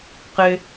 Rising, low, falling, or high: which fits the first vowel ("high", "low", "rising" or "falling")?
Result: high